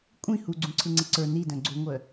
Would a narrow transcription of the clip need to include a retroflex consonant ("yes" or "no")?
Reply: no